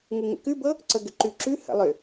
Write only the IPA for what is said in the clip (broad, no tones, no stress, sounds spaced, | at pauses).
ŋ u ŋ ə̰ k ʉ b ɤ | ǀ ə ɡ ʏ ǃ ʉ ǁ ʉ h ə̰ lˠ ʏ